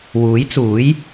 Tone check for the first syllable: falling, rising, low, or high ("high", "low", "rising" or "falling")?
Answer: rising